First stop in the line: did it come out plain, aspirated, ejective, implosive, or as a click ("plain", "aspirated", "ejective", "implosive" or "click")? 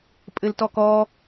ejective